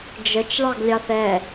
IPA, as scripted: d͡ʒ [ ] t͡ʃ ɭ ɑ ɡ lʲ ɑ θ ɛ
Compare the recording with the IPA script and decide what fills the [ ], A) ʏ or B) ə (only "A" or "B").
B